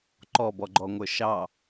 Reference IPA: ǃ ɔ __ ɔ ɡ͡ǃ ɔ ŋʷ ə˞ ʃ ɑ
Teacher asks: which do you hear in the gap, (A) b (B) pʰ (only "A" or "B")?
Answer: A